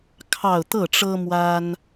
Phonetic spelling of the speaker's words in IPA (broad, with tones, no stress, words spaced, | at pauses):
kʰɑ˥˧ʊ̯ t̪ɤ˥˩ʈ͡ʂɤ˥ mwa˥n